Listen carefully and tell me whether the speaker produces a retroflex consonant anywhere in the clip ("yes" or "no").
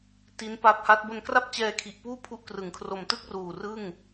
no